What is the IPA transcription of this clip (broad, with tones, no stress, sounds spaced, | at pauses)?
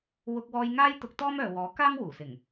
w ʊ˧ k̚ w ɔː˧ j ŋ aː˥ j t̪ ʊ˧ k̚ t̪ ɔː˥ m œː˨ w ɔː˨˥ k aː˥ ŋ w uː˨˩ s ɪ˨˩ ŋ